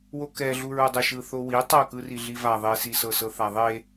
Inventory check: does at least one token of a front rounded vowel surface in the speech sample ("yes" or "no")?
no